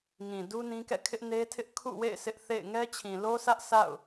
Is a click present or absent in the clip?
absent